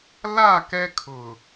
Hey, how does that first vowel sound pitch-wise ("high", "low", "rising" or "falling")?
falling